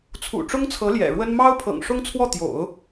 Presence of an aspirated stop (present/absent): present